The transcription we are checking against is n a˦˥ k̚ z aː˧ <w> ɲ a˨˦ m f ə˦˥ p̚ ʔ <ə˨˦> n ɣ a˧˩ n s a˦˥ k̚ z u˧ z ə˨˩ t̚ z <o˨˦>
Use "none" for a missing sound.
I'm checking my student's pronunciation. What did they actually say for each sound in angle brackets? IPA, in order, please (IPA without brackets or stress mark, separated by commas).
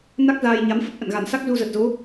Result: j, ə̰˧˨, o˨˦